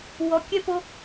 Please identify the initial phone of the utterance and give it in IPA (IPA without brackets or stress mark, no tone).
w